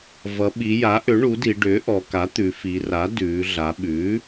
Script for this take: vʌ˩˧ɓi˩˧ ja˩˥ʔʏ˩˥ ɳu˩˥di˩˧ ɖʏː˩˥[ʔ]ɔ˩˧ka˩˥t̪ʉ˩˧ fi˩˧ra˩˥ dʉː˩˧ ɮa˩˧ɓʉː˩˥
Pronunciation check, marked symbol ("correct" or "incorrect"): correct